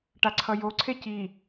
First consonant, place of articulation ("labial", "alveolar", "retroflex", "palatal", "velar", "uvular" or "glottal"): retroflex